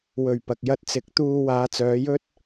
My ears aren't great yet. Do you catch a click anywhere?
no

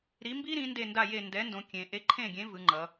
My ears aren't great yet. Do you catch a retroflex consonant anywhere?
no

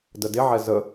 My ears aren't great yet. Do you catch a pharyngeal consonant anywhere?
yes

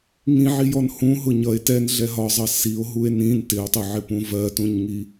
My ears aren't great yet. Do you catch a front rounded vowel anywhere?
no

